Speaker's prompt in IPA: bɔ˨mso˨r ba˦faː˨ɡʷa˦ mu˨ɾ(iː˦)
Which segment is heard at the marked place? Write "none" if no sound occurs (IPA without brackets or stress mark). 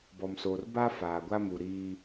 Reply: iː˦